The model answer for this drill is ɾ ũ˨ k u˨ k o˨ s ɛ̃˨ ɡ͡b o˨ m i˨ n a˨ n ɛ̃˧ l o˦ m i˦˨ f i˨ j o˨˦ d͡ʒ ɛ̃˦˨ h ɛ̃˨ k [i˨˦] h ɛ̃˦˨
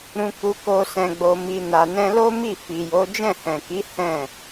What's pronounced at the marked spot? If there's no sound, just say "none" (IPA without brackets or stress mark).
i˨˦